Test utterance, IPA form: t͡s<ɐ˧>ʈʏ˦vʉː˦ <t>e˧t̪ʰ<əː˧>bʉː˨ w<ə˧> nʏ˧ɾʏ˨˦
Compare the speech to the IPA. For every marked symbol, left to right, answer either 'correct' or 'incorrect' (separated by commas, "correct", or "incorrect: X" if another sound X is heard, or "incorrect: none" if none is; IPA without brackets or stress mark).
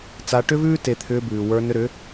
incorrect: a˧, correct, incorrect: ʏː˧, incorrect: ə˞˧